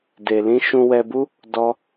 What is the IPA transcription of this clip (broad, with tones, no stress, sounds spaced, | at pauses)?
d e˧ l ĩ˦ ʃ ũ˧ w ɛ˧ b u˦ | d ɔ˦